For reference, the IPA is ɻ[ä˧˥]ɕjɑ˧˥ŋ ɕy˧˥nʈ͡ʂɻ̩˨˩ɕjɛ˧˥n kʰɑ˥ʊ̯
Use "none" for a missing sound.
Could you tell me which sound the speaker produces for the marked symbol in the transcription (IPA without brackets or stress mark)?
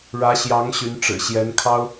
ä˧˥